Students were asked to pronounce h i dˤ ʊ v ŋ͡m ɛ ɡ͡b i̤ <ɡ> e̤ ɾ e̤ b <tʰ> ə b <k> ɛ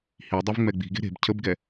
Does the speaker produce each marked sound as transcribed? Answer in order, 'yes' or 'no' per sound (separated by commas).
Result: yes, no, no